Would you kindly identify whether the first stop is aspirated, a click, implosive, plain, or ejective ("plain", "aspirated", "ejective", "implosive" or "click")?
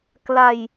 plain